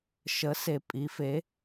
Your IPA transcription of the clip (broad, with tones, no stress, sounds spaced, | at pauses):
ʃ ə˧˥ s e˧ pʼ i˧˥ f e˧˥